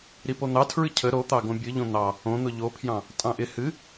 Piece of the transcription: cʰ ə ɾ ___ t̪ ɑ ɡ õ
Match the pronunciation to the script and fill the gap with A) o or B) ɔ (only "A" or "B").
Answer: A